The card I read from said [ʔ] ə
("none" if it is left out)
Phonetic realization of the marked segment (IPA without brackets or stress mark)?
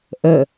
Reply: ʔ